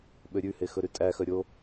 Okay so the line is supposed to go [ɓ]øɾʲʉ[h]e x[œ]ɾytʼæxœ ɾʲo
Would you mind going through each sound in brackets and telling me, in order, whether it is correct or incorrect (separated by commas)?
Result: correct, correct, incorrect